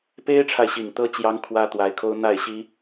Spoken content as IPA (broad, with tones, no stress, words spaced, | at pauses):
pe˥ɪ̯ʈ͡ʂʰa˨ɪ̯ ɕi˨˩ŋt̪ɤ˥ t͡ɕjɑ˥ŋkʰwä˥ t̪wa˧˥ɪ̯kʰo˥ʊ̯n̪a˥˩ɪ̯ɕi˥